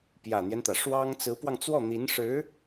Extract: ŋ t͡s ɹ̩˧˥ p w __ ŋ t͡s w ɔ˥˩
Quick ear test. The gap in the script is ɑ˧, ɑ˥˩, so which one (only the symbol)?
ɑ˧